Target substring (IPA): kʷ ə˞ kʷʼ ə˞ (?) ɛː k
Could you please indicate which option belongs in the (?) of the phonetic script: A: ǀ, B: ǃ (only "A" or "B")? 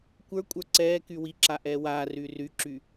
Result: A